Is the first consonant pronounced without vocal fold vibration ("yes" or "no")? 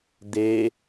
no